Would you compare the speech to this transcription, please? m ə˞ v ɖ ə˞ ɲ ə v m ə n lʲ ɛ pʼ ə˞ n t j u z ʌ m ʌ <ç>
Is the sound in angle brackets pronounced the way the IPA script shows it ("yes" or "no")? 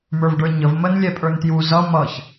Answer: yes